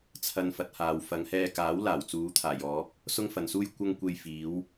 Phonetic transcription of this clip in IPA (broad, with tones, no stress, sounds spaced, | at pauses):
t͡sʰ ɐ˧ n f ɐ˨ t̚ h aː˨ w f ɐ˨˧ ŋ h ɛː˧ k aː˨˥ w l aː˨˩ w t͡s uː˨˧ t̪ʰ aː˨˩ j ɔː˨˥ p̚ | s ʊ˥ ŋ f ɐ˨ n s uː˥ j kʷ ɐ˥ ŋ kʷ e˧ j f iː˨˥ w